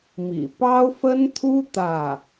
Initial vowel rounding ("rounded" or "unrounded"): unrounded